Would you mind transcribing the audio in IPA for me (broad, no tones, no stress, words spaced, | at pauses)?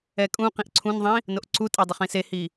ɛkʼũ qĩʔǀʰũnðˤĩ | noʔǀutʼɛdˤʊχ ĩsehi